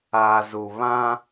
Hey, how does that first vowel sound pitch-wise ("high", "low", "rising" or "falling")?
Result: low